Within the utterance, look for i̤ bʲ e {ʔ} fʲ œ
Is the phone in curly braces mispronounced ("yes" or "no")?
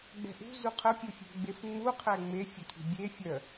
yes